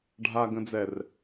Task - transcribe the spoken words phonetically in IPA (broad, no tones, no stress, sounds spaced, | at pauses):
ɖʱ a ɡ ə̃ d͡z ɛ r